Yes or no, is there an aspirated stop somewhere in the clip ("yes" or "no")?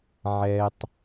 no